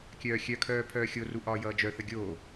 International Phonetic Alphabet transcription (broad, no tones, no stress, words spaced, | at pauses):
kʲœːxʲœkʰœː pʰœːxʲoru ʔɒːjʌːd͡ʒœθə ɡʲo